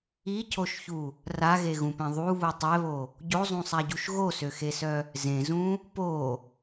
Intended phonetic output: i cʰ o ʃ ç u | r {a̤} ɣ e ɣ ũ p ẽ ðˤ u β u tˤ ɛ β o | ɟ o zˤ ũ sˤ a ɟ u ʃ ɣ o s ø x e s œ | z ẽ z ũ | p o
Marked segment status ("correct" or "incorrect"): incorrect